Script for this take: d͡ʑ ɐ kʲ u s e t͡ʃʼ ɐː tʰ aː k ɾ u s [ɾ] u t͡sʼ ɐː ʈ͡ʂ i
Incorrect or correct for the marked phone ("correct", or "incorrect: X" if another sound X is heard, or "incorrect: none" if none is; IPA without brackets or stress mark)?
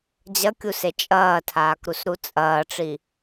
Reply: correct